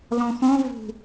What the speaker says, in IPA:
lɔ̃xɔ̃ vṳ

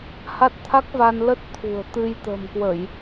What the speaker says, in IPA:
ha˦˥t̚t̪ʰa˦˥k̚va˧n lə˦˥t̚t̪ʰṳ˨˩ə̯ t̪ɨ˧jt̪ə̤˨˩mkwə˧˩˨j

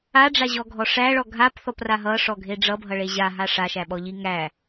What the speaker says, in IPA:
aɖ͡ʐaʑɔɡʱɔ ʂæɭɔ ɡʱapθɔpra ɦʌʂɔɡʱe ɖ͡ʐʌbʱʌɭe ʑaɦa ʂaʃæɓɔʎi ŋæ

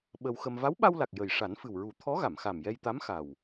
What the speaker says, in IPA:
ɓə˧wxə˧m va˧˥wɓa˧wla˨˩k̚ jə˨˩j ʂa˨˩˦nfɨ˨˩wɹu˨˩˦ t̪ʰɔ˧˥ɣa˨˩˨mxa˨˩m jɛ˧jt̪a˧˥m xa˨˩w

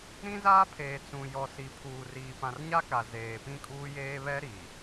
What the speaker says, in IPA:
ɾĩ˦zaː˦pʰeː˨ t͡sũ˨jɔ˨si˨ pʰuː˨ riː˨pã˨rɲa˦ka˨ zeː˨pĩ˦kʼuː˦jeː˦ βɛ˦ ɾi˨

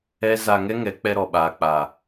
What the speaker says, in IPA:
ɛ˦ za˧ ŋɛ˦ŋɛ˨˦ k͡pɛ˧ɾɔ˨ ɓaː˨k͡paː˨

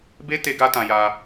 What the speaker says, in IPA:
be˦ te˦ɡa˦ tã˧ja˧

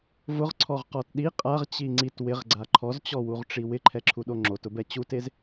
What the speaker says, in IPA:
vʊʁǀʰɔʁqɔt ɗi qʼaʁt͡ɕi ŋ͡ǀit wɪʁɡ͡ǀa ǃʰɔzt͡ɕɔwuʁʈ͡ʂi wɪǃʰɛǁʰuɗo ŋ͡ǁotʊbɛ t͡ɕutez

